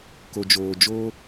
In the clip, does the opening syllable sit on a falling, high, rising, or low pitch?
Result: low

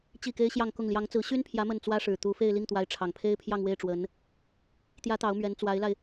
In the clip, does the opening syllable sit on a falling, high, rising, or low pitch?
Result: falling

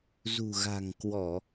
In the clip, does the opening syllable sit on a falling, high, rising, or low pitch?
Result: low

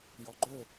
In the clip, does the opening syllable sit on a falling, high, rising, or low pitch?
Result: low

